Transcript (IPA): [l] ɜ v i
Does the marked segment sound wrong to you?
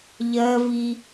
yes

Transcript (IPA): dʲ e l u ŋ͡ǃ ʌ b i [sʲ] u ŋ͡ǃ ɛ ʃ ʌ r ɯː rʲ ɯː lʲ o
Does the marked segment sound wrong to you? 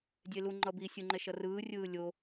no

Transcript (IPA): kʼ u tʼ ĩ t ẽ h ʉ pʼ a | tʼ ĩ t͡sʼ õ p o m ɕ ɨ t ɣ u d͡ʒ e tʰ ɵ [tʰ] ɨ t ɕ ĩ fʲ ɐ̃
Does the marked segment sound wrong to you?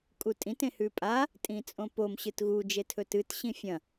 yes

